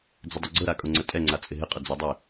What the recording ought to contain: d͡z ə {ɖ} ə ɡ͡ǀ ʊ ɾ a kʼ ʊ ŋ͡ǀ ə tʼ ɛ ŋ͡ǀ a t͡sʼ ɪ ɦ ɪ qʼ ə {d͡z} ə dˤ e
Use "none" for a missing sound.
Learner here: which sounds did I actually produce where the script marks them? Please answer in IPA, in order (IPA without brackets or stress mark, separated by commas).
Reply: dˤ, d͡z